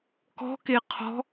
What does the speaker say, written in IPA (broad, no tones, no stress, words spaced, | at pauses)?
kɔ̤ke qʰɔ̤